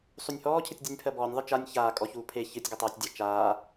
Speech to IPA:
sˤ u nʲ h ɔː cʰ ɨ tʲ dʲ u nʲ pʰ ɜ b ɔː nʲ ðˤ ɨ t͡ʃ a nʲ ç aː kʼ ɔ ç uː pʰ e ç ɨ tʲ ɡ ɨ tˤ eː tʲ dʲ a t͡ʃ aː

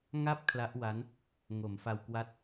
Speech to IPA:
ŋ a˥˩ p̚ kʰ l a˦˥ ʔ w a˦˥ n | ŋ o˩˦ m f a˧ w k w a˦˥ t̚

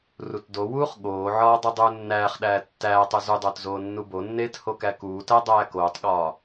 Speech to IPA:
r u t d o w uː χ ɠ oː ʕ ɒː dˤ i dˤ uː nː æː χ ɗ æː tː æː tˤ o z u dˤ oː t z oː nː u b o nː eː t h o k æ k uː t æ dˤ æː k oː tˤ ɠ ɒː

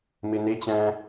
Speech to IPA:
m i n i t͡ɕ ɛ̃ː

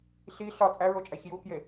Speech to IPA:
ɬ i ɬ ɒ t͡sʼ æ ɹ o t͡ʃʼ æ ç j u k j e

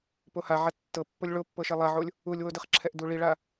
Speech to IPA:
p o h a ʕ a tː ɤ pː o lʲ ɭ o pː ɤ ʃ e lˠ a ʕ o lʲ | u lʲ w o d ɯ χ ǁʰ ɛ ʔ d u ɭ i ɭ a

